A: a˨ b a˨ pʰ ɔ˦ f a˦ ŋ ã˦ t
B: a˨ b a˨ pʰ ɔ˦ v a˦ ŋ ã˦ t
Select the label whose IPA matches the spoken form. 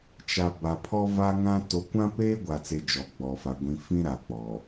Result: B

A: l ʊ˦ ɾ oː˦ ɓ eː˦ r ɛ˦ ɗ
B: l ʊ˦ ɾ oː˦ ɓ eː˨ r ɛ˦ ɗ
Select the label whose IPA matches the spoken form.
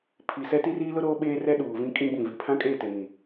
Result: A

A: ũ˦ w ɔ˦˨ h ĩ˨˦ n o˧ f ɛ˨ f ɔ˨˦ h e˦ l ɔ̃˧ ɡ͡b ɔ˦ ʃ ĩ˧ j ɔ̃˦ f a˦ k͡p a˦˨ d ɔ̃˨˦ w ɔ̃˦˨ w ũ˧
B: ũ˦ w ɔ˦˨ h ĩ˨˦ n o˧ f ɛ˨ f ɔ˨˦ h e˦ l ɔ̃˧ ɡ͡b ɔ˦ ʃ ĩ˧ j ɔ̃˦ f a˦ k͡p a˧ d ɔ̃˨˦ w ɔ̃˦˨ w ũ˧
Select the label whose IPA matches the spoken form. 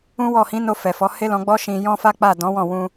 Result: A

